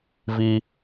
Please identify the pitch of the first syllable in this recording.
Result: low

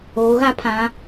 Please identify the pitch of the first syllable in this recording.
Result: rising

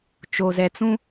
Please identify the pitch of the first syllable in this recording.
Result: low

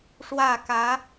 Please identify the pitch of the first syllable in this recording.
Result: falling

